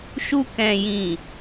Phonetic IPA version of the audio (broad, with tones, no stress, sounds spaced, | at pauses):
ʃ u˧ k ɛ̃˨ j ĩ˨